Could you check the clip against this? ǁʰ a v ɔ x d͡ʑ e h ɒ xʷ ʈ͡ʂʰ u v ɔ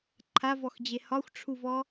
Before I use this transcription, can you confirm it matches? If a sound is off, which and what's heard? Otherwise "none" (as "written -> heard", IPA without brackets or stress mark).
ǁʰ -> ǃʰ